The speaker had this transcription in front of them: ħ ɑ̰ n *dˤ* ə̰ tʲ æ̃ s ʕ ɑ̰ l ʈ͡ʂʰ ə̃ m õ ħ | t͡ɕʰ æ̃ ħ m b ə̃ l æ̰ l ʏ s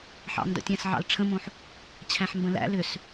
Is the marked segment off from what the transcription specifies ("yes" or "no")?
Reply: yes